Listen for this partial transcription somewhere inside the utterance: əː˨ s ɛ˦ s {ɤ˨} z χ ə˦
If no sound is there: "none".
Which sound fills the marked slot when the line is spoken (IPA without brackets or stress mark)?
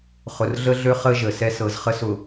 ɤ˨